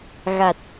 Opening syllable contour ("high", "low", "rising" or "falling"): low